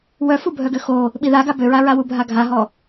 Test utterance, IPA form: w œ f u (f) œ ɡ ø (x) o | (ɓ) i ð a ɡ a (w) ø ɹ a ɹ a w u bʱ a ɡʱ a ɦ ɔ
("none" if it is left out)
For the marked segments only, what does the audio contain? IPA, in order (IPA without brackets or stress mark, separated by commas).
bʱ, x, ɓ, b